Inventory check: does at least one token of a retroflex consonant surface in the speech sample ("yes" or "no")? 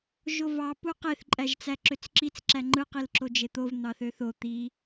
no